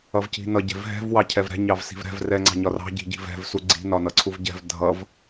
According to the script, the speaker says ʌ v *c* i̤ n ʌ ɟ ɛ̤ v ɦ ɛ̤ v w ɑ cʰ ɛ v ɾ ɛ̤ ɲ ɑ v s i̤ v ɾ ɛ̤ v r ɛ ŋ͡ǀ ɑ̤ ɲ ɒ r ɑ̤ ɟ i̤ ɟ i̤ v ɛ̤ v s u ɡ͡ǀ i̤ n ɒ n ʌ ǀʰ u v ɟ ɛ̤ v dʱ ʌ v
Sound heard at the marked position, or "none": c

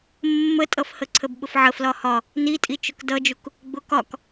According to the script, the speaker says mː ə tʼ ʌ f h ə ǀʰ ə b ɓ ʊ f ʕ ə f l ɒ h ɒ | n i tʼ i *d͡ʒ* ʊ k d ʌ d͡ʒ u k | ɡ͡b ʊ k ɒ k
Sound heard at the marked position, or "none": t͡ʃ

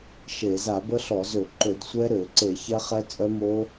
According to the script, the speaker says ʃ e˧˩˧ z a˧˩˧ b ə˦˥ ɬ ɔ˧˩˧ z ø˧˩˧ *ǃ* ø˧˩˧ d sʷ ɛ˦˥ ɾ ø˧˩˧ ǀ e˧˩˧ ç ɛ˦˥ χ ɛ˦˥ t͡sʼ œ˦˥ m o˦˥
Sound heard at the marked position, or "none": ǃ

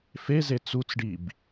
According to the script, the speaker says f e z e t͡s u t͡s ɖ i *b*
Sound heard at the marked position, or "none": b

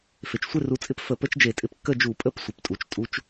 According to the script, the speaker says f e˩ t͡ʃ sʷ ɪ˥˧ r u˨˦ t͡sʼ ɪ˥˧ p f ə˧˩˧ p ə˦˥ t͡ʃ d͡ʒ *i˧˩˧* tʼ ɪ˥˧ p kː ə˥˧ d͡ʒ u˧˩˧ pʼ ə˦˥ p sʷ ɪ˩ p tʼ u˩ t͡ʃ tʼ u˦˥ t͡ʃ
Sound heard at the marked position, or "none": e˧˩˧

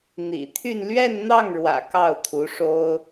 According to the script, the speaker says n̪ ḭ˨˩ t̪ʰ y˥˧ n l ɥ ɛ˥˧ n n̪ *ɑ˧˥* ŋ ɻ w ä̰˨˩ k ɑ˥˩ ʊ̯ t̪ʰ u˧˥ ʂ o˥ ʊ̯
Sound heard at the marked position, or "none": ɑ˥˩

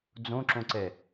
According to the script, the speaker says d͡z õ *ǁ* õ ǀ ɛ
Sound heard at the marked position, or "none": ǁ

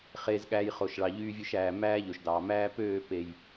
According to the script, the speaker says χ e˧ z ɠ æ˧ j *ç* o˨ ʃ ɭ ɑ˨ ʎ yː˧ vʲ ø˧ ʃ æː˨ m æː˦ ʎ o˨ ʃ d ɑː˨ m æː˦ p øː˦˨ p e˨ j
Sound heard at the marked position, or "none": χ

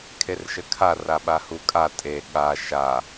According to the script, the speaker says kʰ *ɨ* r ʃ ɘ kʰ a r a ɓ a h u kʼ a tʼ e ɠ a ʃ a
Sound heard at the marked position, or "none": e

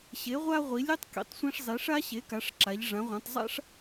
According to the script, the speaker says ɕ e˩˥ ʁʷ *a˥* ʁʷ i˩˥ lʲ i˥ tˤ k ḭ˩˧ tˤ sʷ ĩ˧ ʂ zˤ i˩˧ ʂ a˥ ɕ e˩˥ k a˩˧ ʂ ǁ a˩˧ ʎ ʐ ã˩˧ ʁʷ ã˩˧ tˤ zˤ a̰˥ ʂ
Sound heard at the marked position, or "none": a˥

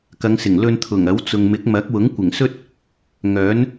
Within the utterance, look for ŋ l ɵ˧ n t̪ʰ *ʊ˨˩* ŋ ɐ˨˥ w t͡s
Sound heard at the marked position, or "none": ʊ˨˩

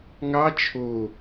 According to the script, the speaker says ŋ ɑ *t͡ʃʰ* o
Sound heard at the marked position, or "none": t͡ʃʰ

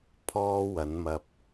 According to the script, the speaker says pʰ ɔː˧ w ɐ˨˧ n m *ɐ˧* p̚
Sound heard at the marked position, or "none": ɐ˧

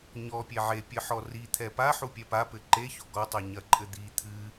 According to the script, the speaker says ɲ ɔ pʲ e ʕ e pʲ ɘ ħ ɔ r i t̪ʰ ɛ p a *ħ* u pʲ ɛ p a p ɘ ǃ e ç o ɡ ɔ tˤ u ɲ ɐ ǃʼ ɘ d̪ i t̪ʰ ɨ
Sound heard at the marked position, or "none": ħ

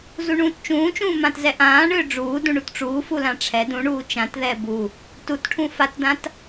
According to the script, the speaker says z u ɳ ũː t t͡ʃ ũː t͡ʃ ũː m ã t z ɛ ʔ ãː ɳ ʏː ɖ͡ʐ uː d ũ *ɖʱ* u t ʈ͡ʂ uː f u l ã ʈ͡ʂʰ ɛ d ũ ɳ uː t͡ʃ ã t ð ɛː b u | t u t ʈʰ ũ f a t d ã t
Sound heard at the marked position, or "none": ɳ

